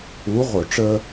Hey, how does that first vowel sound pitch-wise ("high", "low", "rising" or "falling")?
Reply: rising